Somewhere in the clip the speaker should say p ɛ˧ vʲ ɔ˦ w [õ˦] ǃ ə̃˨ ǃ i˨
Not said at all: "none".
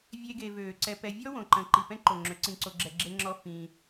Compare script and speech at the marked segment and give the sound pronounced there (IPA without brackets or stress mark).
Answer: õ˨